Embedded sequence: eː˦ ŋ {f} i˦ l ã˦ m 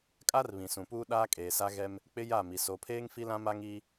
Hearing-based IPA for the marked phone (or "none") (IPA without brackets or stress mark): f